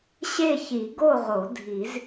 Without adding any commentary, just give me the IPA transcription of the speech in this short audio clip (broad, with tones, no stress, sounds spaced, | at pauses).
ɕ e˥˧ ç i˨˩˦ ɡ o˥˧ ʁ o˨˩˦ dʱ i˨˩˦ z